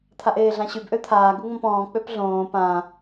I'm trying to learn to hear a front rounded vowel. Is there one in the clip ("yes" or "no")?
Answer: yes